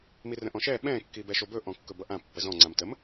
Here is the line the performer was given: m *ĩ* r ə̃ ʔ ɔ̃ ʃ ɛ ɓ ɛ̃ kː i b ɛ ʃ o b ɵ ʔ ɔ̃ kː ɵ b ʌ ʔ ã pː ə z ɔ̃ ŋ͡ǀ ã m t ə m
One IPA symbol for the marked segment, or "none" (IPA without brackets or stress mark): i